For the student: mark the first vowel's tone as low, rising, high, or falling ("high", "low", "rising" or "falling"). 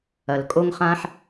low